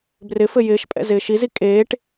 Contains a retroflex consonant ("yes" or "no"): yes